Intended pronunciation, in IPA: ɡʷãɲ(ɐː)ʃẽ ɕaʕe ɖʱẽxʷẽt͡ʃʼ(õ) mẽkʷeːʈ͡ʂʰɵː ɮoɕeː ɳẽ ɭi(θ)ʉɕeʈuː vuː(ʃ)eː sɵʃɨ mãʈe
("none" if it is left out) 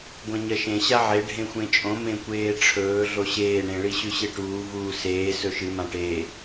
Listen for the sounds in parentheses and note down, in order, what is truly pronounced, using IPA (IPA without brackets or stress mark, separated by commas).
ɐ, õ, ɕ, s